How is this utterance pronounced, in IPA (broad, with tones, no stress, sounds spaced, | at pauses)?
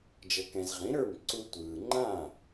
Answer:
d͡ʒ ɤ˩ k ɛ̃˩ z ʁ ĩ˩˥ ɾ ə˞˥˩ m ǀ u˧ tʷ ɯː˩ ŋ͡ǃ ã˥˩